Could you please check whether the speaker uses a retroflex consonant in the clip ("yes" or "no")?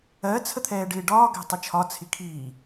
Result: yes